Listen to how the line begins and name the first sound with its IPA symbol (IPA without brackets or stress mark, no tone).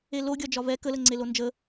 e